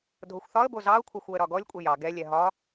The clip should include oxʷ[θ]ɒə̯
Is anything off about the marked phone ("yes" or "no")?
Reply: no